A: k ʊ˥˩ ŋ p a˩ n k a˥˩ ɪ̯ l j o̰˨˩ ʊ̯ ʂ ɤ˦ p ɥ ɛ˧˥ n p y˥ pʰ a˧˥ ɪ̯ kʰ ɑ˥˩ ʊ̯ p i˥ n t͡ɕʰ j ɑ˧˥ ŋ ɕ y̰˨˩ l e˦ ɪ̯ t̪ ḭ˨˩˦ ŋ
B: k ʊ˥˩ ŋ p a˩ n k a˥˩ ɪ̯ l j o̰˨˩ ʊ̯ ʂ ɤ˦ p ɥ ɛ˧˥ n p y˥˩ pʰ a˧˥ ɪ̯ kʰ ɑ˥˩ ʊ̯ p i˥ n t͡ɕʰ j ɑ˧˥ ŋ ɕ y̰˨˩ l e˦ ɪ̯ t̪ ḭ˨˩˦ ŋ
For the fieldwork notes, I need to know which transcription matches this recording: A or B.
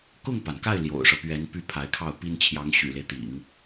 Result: B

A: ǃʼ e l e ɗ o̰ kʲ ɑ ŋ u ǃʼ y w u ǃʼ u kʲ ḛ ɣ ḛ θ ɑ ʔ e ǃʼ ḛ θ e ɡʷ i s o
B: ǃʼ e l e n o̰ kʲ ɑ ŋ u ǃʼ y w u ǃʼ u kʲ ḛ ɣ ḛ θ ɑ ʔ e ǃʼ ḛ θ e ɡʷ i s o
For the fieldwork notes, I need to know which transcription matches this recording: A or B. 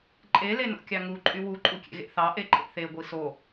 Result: B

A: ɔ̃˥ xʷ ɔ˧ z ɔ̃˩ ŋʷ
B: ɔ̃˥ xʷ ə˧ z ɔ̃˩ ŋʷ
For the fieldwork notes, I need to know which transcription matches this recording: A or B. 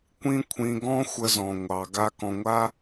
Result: B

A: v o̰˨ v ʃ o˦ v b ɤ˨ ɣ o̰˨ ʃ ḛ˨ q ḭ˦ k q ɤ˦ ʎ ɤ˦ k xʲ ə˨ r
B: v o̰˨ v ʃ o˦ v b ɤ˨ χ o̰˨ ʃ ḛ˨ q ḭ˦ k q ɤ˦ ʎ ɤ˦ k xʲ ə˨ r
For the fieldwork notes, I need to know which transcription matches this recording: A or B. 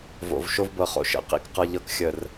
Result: B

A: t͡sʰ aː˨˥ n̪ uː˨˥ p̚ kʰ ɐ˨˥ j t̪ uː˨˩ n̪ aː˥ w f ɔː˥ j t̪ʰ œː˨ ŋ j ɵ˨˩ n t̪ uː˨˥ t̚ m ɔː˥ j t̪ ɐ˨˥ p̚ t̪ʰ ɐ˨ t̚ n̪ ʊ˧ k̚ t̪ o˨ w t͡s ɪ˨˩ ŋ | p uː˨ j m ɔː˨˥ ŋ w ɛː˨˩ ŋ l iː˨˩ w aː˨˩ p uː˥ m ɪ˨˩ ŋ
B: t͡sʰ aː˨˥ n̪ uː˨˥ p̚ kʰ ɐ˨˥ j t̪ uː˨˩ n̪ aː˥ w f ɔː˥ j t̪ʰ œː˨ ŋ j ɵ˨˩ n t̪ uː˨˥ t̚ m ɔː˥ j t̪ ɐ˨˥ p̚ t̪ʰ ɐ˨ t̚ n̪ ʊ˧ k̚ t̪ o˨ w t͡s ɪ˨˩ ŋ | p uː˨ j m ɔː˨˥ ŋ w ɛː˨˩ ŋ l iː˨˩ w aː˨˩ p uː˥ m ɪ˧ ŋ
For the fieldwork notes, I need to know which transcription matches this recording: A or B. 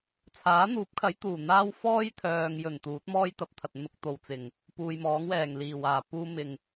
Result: A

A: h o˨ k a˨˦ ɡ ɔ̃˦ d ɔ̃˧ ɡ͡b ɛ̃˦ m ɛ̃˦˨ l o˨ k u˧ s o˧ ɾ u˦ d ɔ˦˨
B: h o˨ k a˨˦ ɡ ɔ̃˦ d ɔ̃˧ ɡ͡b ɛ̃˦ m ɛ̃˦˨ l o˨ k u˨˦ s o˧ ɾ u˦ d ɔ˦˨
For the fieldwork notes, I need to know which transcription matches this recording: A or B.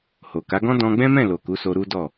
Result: B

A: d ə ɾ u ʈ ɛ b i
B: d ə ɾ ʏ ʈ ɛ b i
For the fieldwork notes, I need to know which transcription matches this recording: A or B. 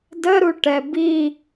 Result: A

